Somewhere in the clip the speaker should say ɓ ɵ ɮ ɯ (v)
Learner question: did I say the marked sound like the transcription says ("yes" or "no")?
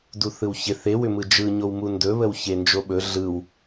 no